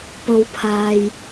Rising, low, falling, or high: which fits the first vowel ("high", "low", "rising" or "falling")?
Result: low